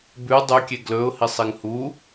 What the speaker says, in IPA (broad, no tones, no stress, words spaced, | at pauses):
bʉ dˤʉkʲe ɡlɵʊ̯ hisˤiŋhu